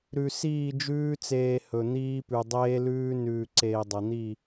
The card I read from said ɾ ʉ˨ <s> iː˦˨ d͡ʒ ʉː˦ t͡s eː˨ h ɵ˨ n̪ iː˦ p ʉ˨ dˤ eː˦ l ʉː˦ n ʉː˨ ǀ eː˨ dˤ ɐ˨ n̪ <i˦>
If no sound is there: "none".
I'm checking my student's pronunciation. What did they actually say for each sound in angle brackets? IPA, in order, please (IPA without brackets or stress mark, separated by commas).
s, i˦˨